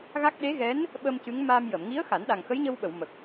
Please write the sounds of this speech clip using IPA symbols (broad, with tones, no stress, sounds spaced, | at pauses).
ɣ a˦˥ k̚ ɗ e˧˥ ɣ ɛ˧˥ n | ɓ ə˧ m c ɨ˧˥ ŋ m aː˧ m j ə˨˩˨ m ŋ i˧˥ ə̯ x a˨˩˦ n ɗ a˨˩ ŋ x ə˧˥ j ɲ ə˧ w ɓ ə˨˩˨ w m ə˨˩ k̚